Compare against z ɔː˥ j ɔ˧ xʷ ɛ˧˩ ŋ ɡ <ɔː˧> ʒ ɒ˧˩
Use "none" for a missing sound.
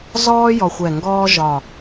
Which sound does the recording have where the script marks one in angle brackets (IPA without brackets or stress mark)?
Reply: ɔː˥